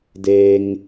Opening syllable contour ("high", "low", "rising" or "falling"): low